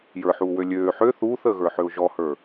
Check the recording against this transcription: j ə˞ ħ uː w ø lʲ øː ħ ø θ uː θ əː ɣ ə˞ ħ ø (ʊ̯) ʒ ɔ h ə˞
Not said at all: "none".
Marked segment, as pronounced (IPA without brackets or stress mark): ʊ̯